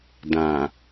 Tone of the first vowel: low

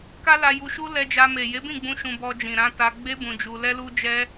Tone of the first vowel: high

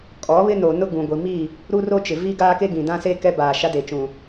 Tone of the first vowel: rising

